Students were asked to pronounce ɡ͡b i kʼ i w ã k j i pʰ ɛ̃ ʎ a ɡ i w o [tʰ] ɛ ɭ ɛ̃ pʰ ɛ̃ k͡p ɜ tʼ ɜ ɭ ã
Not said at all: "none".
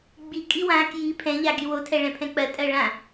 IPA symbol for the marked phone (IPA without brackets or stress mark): tʰ